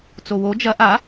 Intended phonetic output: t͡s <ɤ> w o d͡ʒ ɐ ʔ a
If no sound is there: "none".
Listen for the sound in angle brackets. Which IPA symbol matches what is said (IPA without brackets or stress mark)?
o